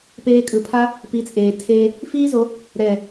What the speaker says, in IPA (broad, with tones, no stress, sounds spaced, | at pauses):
p eː˧ kʼ ɯ˨ pʰ a˦ | p i˨˦ t͡sʼ eː˨ tʰ eː˧ | f iː˦ z o˨˦ | ɾ ɛ˨